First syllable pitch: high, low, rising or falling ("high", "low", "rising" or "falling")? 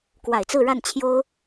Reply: low